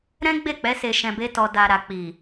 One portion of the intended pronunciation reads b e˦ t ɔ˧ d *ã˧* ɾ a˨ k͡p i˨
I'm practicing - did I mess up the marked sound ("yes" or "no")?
yes